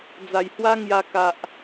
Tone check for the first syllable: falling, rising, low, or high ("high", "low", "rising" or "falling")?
low